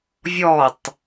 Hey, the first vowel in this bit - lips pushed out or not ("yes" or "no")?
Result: yes